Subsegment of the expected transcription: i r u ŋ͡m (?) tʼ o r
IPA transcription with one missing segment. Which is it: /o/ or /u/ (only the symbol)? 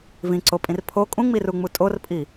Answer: u